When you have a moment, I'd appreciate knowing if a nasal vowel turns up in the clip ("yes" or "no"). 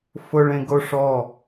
yes